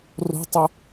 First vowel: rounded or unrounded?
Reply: rounded